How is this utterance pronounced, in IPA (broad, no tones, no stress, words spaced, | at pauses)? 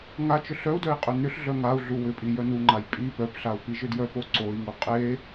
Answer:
ŋat͡ʃʏ ɬœu̯dœi̯ qʼʏnʏɬɮœ ŋau̯ ɮuwʏpʼi jœnuŋ͡ǃaj pʼi pœpɬau̯ piʒʏdjœpo ǀoi̯ŋu qʼe